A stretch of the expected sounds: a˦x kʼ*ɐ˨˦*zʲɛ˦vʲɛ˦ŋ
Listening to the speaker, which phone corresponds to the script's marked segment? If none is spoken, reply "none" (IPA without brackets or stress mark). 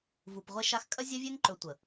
ɐ˦